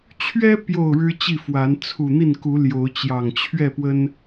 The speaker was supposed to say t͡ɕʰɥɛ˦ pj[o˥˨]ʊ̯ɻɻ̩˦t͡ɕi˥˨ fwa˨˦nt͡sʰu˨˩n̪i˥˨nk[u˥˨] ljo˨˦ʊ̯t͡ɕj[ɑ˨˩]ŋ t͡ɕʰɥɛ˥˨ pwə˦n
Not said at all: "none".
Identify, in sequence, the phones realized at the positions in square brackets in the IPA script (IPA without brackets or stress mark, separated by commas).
o˥˨, u˨˦, ɑ˨˩